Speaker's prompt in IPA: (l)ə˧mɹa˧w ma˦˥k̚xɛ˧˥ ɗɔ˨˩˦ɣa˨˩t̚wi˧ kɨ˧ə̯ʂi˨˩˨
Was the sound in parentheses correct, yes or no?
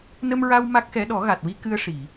no